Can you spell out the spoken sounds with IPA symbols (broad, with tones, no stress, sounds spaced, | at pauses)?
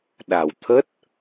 ɗ a˨˩ w t̪ʰ ə˦˥ t̚